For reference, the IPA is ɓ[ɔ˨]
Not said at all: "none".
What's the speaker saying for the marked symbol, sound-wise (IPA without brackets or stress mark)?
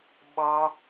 ɔ˦